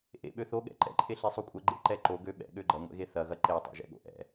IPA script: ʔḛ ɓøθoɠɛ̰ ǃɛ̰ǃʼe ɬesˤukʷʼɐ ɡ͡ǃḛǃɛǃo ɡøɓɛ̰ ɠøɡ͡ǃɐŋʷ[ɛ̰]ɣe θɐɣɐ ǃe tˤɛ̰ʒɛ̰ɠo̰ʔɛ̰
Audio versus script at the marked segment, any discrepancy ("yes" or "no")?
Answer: no